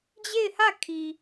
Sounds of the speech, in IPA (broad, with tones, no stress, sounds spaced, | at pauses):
d͡ʑ e˦˨ ɪ̯ h ä˦˨ kʰ i˨